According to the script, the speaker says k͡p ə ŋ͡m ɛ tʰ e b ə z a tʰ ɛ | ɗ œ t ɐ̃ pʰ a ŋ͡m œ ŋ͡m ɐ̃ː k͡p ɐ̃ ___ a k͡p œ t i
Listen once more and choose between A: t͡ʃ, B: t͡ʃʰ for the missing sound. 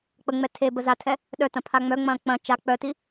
A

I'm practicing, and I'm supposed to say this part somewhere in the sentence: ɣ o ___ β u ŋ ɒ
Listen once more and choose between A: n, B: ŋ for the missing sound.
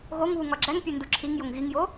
B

